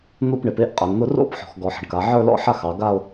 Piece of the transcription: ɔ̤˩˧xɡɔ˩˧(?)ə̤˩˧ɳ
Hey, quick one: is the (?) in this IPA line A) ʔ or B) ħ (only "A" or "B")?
B